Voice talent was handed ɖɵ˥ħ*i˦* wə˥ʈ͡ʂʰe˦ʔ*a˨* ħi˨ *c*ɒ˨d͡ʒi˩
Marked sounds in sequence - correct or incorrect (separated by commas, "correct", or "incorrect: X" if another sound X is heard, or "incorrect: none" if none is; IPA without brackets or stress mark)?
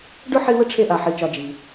correct, correct, incorrect: t͡ʃ